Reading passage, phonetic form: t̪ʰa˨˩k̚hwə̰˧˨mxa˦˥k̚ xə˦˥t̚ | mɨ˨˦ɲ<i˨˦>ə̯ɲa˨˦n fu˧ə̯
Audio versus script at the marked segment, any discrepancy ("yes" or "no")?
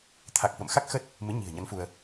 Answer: yes